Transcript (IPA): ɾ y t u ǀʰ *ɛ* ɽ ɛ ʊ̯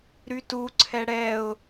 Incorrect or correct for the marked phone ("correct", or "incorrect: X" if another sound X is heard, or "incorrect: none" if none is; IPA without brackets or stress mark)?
correct